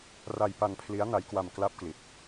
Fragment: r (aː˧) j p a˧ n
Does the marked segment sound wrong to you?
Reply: yes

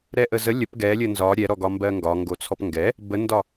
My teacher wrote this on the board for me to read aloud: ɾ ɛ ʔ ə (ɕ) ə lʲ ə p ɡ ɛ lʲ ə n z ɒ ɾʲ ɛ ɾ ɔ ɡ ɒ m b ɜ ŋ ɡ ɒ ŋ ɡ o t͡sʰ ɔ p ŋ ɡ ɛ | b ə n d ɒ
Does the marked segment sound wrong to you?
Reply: yes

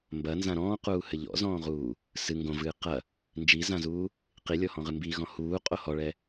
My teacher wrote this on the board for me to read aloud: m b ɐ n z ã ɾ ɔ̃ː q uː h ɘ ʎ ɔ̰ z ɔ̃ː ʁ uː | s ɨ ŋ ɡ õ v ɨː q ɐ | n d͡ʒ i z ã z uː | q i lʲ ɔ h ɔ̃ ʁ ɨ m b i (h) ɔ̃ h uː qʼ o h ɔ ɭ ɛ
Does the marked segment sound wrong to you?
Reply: yes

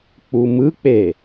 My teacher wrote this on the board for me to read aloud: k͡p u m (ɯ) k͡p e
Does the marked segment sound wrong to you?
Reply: no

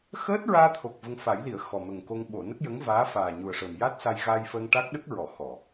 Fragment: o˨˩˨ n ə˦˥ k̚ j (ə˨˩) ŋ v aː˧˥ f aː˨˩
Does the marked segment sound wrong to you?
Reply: yes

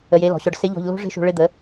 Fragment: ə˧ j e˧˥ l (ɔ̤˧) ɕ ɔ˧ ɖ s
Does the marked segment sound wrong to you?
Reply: yes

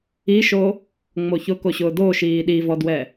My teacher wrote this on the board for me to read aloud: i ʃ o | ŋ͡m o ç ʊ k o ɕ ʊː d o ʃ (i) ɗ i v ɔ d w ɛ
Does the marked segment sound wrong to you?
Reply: yes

